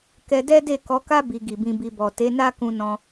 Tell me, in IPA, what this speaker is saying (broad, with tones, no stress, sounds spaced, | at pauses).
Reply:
k ɛ˧ d ɛ˦ d e˦˨ k ɔ˨˦ k a˦ b i˧ ɡ i˨ b ĩ˧ b i˧ b ɔ˨ t e˨˦ n a˦ k ũ˧ n ɔ̃˧